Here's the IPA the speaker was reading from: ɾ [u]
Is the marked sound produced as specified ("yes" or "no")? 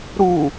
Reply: yes